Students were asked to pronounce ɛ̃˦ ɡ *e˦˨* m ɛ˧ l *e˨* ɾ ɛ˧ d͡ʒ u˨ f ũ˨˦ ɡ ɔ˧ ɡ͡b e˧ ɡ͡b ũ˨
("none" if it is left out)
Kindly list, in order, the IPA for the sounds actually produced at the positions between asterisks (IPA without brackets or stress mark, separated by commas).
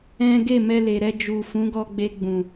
e˦˨, e˨